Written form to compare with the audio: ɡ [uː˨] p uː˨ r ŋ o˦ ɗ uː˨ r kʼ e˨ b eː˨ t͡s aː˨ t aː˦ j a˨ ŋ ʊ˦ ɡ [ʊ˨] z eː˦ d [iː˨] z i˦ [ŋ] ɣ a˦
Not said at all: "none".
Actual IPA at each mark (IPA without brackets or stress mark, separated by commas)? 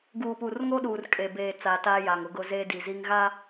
uː˨, ʊ˦, i˨, ŋ